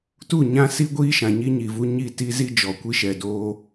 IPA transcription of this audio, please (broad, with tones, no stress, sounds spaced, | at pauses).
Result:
t u˦˨ ɲ ã˦ s i˦ ɡʷ iː˦ ʃ ã˨ ɲ i˦ ɲ i˨ v u˦ ɲ i˦˨ t i˦ z i˦ d͡ʒ ɔ˨ kʷ i˦ ʃ ɛ˨ d oː˦